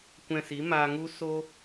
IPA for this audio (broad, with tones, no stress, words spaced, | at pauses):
kʷɛ̃˧si˨˦ maː˧ŋu˦ so˦